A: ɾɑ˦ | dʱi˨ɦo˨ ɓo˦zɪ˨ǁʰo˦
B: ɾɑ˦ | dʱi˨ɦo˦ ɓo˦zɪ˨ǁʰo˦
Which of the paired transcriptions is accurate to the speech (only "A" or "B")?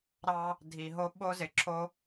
B